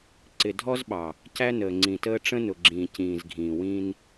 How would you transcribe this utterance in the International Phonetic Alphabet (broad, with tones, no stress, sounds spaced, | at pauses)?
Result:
ǀ ɪ˨ dʱ ɔ˦ z ɓ ɑ˨ | c æ˦ n əː˨ ŋ͡ǀ ĩ˨ t əː˦ ʈ͡ʂ ə̃˦ n ʊ˨ ɡ͡ǁ ĩː˨ c ĩː˨ z ɡʱ ĩː˨ w ĩ˦ n